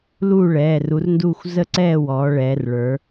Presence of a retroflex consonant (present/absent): present